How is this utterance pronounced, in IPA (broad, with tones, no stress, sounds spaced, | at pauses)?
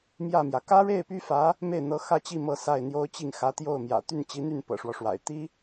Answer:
m j ä˥˩ m j ä˩ k ä˥ ɻ e˥˩ ɪ̯ p y˥ f ä˧˥ | m e˥˩ ɪ̯ n̪ ɤ˧˥ x ä˥˧ t͡ɕ i˥˧ m ɤ˥˧ s a˥˩ ɪ̯ n̪ j o˥ ʊ̯ t͡ɕ i˥˩ ŋ x ä˧˥ t̪ j o˥˩ ʊ̯ m j ä̰˨˩ t̪ y˥˩ n t͡ɕ i˧˥ n̪ y˥˩ n p ɤ̰˨˩ ʂ w ɔ˦ ʂ w a̰˨˩ ɪ̯ t̪ i˥